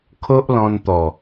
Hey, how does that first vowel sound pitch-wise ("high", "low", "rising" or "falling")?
high